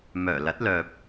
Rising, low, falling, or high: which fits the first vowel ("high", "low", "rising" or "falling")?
low